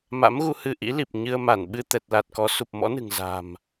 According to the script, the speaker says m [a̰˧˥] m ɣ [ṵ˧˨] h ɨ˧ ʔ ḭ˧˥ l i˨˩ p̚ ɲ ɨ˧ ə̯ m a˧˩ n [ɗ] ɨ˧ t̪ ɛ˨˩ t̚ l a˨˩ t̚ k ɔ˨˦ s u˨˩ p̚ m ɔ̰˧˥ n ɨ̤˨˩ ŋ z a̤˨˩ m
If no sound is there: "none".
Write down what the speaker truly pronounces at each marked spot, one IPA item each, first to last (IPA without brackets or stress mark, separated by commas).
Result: a̰˧˥, u˧, ɓ